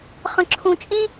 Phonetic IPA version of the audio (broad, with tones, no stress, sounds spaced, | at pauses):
χ ə̃˧ ǁʰ ũ˧ t͡ʃʼ ĩ˥